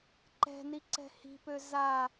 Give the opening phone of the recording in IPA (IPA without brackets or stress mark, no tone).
ǃ